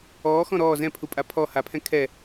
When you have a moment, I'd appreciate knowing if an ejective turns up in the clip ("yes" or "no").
yes